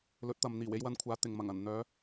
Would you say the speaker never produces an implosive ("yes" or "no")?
yes